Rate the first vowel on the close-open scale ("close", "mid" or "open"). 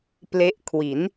mid